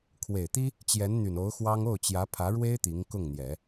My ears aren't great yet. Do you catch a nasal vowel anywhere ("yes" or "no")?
no